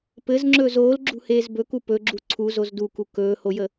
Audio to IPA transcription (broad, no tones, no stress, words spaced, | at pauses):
pɘzŋ͡ǁɵːz oːlɡ͡ǁṳheːz bɵku pɵɡ͡ǁu ǀʰuzoz duku kɵːhojə